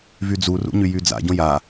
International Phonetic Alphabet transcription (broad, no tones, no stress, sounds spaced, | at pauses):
v y d͡z u r ṵ ɲ y j y d͡z a̰ ɟ õ j a